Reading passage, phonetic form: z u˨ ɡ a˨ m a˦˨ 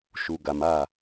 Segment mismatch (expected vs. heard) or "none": z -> ʃ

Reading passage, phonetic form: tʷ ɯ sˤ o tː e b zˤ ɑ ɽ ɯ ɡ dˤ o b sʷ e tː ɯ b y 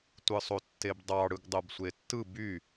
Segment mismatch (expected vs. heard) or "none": zˤ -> dˤ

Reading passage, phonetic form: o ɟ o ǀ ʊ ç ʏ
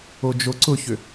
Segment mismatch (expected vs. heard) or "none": ɟ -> d͡ʒ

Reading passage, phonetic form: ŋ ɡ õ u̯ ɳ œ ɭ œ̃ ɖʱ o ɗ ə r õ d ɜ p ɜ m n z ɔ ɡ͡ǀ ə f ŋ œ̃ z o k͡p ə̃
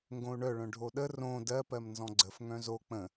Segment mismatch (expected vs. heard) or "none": ɔ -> ɔ̃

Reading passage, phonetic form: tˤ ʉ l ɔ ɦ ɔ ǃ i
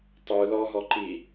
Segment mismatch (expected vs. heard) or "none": none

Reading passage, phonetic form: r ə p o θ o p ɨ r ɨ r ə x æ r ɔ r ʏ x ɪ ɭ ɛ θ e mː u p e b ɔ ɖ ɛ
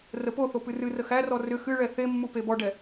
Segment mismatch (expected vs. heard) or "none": ɪ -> ɨ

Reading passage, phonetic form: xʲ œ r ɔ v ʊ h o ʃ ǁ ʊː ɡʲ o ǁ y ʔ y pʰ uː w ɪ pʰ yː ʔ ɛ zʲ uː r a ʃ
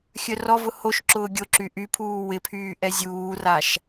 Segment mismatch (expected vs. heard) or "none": none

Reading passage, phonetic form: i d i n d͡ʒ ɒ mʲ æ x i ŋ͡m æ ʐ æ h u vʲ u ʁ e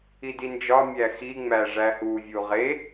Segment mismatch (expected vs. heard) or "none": none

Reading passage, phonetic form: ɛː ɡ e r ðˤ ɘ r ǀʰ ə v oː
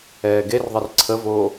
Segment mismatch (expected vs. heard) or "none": none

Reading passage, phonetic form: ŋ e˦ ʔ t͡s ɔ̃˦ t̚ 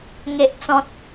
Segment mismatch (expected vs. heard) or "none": none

